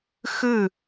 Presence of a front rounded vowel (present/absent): absent